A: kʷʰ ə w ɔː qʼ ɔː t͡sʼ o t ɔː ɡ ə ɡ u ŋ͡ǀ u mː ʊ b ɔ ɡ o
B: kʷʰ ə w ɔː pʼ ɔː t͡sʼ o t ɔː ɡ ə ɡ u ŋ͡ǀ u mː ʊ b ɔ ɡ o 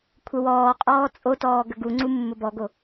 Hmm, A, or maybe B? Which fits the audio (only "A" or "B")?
A